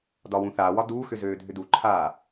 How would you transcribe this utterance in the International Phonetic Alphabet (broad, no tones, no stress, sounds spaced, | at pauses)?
d ɒ w ũ θ aː w ɒ d uː x ʏ z øː dʱ ʏ d u ǃʰ aː